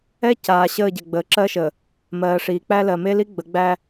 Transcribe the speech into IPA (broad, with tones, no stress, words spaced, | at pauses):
ɛ˦ caː˨ɕəː˦˨ ɟɛ˨ɡ͡bəː˨ǁɜ˦ʃə˨ | mɜː˨ʂiː˨k͡pæ˦ lɜ˨me˦li˦ ɡ͡bə˨˦ɡ͡bæ˦